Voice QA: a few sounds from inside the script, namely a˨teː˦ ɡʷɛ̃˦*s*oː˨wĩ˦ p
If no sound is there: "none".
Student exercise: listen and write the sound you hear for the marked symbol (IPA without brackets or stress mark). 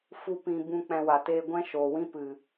ʃ